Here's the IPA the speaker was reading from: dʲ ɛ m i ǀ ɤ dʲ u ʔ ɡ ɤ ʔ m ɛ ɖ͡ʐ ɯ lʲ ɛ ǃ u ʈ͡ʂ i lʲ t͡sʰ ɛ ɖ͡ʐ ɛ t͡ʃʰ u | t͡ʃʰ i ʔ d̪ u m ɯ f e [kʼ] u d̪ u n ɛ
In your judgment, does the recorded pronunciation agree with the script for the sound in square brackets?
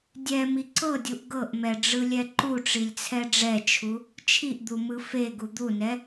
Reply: no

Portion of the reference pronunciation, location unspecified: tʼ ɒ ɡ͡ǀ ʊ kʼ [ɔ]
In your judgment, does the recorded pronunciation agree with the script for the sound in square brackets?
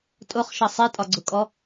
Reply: yes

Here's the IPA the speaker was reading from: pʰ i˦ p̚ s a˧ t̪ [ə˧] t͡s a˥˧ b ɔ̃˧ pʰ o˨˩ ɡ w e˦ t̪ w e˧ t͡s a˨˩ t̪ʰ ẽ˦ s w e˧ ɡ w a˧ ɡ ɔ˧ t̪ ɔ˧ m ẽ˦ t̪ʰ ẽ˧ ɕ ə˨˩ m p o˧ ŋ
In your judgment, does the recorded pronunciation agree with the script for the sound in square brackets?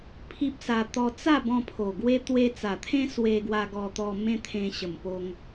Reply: no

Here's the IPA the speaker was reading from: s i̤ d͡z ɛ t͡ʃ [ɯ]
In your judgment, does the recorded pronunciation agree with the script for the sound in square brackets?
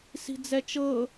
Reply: no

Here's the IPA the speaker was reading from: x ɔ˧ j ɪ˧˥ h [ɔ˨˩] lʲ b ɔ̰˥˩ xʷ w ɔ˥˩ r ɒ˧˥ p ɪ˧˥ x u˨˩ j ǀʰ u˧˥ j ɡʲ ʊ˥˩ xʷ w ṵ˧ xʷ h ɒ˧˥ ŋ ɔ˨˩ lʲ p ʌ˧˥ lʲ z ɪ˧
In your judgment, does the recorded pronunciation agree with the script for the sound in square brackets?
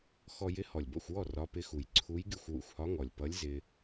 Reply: yes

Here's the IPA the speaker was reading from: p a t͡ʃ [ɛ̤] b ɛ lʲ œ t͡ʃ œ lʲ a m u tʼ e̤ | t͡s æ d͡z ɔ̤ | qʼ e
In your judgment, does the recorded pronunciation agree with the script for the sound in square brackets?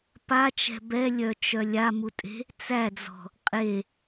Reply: yes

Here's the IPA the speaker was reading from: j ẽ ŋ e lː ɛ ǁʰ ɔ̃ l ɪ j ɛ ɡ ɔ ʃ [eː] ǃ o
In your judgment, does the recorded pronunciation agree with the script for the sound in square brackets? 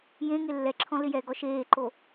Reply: yes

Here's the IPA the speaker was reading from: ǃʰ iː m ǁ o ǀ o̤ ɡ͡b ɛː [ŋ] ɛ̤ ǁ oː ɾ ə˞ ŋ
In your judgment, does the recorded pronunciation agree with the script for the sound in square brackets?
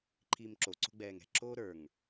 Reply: yes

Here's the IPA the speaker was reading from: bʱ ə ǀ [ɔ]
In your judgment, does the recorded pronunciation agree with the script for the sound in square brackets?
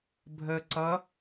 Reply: no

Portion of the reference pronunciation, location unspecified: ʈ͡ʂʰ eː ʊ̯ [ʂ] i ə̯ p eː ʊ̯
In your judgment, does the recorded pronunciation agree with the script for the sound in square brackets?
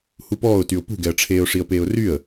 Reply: yes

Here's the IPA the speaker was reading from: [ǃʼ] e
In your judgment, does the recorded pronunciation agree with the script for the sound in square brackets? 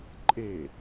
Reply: yes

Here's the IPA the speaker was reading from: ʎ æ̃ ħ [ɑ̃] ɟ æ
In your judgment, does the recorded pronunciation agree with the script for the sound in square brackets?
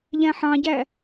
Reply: yes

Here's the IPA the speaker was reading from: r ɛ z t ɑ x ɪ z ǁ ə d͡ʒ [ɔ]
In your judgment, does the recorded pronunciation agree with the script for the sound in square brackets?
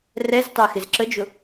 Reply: no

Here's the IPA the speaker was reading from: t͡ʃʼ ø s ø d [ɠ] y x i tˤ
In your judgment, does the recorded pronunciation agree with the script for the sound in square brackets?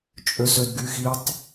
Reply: no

